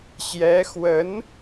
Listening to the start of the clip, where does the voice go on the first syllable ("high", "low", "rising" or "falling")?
rising